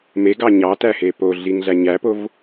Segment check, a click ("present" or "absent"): absent